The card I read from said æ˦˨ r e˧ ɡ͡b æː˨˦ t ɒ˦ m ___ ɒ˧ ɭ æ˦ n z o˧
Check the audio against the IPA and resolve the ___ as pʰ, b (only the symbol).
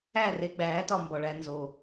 b